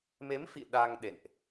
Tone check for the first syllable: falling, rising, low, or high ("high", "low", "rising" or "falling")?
rising